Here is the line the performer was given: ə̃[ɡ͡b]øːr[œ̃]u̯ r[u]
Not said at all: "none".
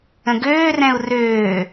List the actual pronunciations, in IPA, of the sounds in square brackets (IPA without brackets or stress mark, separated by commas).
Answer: ɡ, ɛ̃, ø